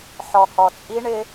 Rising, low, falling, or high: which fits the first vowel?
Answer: low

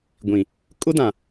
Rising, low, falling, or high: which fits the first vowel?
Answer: low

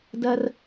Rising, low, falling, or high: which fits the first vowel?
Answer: high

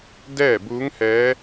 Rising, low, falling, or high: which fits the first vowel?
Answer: falling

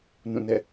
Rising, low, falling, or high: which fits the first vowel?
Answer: falling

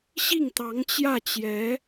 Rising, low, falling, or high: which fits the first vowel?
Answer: falling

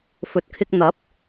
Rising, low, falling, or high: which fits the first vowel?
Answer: low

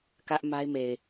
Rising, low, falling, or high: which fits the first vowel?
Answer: high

